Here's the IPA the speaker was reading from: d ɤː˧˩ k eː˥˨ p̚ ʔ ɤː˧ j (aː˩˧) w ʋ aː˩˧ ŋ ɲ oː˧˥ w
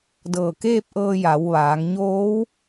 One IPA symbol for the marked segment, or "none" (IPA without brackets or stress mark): a˩˧